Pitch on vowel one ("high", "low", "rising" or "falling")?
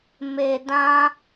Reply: low